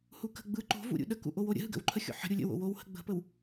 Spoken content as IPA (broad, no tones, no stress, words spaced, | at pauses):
hukə̤ ɡ͡bɯ ǃo̤vṵ ɾʲṵɗəkṵ ʔowoɾʲə̰ɦɯ ɡə̰wǃʰəxʲo̰ ħə̤ ɾʲulʲə̰wo̰ wowhə̤ ɡ͡bə̤pəw